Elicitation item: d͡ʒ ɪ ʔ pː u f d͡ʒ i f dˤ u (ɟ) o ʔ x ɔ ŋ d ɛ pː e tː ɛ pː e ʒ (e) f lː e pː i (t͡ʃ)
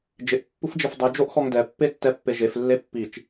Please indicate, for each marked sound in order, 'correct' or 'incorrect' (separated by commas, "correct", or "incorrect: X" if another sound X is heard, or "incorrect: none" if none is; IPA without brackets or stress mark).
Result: incorrect: d͡ʒ, correct, correct